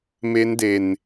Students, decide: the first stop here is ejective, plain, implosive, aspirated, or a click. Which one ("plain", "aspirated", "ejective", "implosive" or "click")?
plain